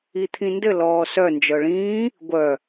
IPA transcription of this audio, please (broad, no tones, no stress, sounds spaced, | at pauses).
i t̪ʰ ĩ n d ɘ l ɔː s œ n d͡ʒ œ ɭ ĩː | ɡʷ œ